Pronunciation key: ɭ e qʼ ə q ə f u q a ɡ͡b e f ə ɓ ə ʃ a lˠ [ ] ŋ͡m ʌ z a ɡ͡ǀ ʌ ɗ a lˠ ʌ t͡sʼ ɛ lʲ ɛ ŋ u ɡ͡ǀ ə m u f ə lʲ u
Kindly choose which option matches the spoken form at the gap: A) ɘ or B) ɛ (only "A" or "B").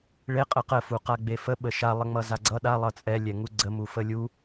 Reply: A